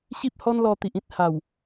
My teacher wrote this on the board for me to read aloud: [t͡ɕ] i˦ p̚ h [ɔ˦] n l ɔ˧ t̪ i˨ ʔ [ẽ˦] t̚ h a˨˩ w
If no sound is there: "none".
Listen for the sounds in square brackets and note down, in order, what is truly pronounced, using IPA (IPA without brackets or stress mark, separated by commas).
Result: ɕ, ɔ˦, ĩ˦